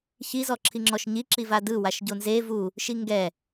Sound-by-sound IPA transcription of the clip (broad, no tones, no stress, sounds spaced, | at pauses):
ç i z ɔ ǁʰ i ŋ͡ǁ ɔ ʃ ɲ i ǁ i v a d ɯ w a ʃ ɟ o n z e v u | ʃ i ŋ ɡ ɛ